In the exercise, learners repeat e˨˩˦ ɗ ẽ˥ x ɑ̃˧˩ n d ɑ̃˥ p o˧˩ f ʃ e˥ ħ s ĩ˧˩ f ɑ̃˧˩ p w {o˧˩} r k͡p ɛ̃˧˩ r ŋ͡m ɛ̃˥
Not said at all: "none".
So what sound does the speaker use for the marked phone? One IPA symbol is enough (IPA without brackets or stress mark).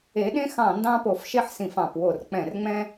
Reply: o˧˩